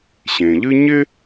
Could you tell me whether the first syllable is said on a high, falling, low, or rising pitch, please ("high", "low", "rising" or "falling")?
low